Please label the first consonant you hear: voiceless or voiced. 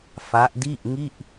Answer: voiceless